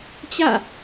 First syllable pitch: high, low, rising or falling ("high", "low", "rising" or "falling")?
falling